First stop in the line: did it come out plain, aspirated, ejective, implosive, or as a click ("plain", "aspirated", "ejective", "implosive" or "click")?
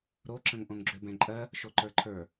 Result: click